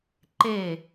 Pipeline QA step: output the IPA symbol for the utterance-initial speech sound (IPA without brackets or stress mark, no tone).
ǃ